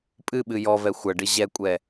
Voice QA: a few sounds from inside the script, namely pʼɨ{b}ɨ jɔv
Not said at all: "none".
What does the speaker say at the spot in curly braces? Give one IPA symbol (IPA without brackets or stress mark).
ɓ